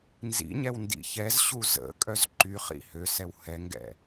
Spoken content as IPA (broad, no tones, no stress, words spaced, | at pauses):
nzḭɲɛw ndḭçɛzɕu zə̰kʼœz ǃyχḭ høsɛw hɛŋɡɛ̰